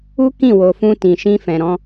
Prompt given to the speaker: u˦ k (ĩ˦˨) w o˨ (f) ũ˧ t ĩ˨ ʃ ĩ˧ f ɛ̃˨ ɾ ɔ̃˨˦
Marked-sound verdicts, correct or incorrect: correct, correct

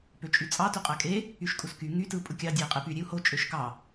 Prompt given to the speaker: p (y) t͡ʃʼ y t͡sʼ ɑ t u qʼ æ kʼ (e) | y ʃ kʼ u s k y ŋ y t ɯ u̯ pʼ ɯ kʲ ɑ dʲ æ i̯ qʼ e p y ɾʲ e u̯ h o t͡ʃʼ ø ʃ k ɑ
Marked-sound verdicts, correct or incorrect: incorrect: ø, correct

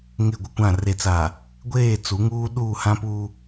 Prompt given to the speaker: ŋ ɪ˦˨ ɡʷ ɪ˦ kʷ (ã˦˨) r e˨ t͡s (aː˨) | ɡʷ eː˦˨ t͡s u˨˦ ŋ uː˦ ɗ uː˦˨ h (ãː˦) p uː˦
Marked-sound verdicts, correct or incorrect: correct, correct, incorrect: ã˦

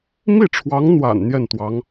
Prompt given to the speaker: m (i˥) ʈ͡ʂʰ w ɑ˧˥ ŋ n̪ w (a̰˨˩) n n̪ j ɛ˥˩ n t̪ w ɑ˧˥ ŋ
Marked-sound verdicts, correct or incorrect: incorrect: i˥˩, correct

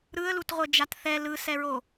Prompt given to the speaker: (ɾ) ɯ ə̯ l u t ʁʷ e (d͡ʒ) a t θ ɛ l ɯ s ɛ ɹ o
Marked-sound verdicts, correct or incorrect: correct, correct

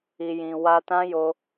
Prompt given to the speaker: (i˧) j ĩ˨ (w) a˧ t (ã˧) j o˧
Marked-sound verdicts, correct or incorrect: incorrect: i˨, correct, incorrect: ã˦

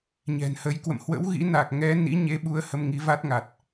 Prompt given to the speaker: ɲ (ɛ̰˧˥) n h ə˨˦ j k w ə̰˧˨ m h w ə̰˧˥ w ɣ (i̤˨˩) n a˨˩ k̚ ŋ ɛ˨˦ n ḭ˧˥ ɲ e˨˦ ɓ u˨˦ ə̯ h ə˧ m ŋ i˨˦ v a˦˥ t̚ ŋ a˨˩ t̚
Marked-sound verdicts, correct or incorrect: incorrect: ɛ̤˨˩, incorrect: ḭ˧˥

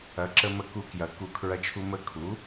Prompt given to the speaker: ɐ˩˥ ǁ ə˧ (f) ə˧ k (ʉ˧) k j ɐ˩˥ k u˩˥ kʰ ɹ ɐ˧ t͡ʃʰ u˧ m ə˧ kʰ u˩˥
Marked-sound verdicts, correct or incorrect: incorrect: m, incorrect: u˧

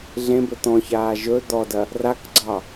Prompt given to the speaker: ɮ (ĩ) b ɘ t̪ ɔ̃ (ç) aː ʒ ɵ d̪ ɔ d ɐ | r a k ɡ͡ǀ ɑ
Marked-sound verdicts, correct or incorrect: incorrect: ẽ, correct

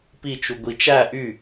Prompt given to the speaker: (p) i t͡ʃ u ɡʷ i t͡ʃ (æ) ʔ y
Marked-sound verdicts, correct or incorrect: correct, correct

